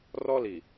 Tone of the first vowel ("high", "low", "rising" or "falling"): high